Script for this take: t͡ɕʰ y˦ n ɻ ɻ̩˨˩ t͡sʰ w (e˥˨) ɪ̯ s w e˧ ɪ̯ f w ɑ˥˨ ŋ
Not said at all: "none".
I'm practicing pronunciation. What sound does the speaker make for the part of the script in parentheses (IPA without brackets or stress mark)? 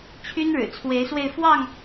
e˨˦